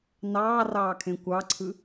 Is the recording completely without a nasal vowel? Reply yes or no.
no